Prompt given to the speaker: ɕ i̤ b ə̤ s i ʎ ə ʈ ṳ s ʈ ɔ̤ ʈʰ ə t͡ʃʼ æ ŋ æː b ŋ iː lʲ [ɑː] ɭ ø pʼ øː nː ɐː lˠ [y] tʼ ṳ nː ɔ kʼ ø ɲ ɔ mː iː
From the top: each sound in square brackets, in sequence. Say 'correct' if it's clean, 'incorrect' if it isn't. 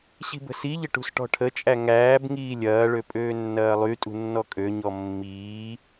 incorrect: ɐː, correct

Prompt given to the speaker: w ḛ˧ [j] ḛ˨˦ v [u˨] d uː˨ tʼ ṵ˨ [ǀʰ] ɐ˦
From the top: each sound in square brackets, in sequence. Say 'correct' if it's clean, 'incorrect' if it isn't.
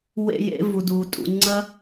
correct, correct, incorrect: ŋ͡ǀ

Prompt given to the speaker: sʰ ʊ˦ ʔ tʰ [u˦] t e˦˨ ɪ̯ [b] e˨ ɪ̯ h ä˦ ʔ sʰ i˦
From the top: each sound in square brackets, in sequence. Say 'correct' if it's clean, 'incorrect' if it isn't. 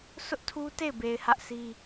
correct, correct

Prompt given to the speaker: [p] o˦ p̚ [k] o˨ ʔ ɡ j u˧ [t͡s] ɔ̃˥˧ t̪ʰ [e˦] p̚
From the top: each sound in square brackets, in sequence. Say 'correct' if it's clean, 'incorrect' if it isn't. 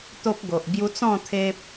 incorrect: t̪, incorrect: ɡ, correct, correct

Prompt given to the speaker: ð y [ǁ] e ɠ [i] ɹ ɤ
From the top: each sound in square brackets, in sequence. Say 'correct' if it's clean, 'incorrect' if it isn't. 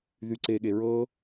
incorrect: ǀ, incorrect: e

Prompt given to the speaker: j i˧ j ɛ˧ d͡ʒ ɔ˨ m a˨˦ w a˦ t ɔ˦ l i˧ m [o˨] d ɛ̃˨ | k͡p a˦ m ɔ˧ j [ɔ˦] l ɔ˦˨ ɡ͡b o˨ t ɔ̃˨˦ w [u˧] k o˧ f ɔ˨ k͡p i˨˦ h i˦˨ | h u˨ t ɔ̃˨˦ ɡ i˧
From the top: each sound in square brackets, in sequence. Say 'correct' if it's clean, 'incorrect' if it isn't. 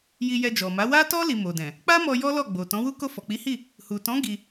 correct, correct, incorrect: u˦

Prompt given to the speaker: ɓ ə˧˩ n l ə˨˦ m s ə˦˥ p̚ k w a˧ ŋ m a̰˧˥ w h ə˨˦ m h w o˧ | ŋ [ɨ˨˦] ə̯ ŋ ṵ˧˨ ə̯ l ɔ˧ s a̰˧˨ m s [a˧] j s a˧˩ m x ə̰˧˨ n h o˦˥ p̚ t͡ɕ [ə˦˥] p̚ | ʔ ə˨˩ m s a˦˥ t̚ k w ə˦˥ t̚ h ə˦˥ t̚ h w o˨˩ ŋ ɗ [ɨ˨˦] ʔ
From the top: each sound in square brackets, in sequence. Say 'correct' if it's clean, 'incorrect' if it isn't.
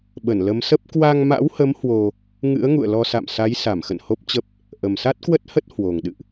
incorrect: ɨ̰˧˥, incorrect: a˨˦, correct, incorrect: ɨ̰˧˨

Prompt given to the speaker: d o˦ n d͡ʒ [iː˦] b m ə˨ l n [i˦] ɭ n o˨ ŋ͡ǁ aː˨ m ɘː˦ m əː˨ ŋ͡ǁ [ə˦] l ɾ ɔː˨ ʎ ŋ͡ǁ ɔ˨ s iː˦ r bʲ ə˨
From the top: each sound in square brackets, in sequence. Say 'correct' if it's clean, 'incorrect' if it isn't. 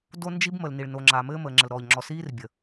incorrect: i˦, incorrect: i˨, incorrect: ə˨

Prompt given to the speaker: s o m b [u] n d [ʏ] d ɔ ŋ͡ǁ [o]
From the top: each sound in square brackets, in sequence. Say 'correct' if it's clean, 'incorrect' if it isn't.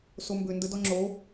incorrect: ʏ, incorrect: ə, correct

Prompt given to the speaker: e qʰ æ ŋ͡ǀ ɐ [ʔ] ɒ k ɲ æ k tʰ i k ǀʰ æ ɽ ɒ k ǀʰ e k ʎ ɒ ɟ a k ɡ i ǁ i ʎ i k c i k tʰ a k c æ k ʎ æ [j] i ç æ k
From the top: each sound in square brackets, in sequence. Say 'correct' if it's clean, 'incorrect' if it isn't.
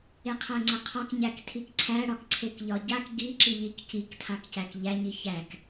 incorrect: qʰ, incorrect: ɲ

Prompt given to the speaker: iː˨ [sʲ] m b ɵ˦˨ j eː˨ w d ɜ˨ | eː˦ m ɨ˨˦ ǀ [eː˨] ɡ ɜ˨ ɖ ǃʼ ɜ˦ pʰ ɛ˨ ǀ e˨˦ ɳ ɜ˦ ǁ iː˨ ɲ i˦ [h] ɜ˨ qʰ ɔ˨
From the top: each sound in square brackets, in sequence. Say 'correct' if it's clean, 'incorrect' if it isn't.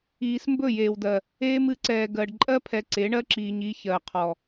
incorrect: s, incorrect: ɛː˨, incorrect: ç

